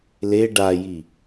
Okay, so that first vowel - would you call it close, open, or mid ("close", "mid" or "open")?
mid